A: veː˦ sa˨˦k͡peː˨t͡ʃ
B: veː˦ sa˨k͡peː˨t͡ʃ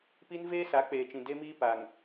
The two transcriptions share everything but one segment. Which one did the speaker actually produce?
A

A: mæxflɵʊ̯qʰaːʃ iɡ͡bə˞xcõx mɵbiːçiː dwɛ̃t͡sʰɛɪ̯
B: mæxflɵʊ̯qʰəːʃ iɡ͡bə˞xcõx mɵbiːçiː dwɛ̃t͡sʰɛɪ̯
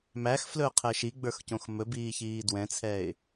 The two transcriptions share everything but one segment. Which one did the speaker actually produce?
B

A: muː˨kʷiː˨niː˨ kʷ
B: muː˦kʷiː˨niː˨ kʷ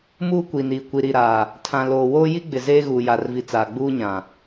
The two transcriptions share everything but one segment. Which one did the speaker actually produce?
B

